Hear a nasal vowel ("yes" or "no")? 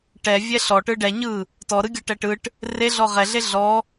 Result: no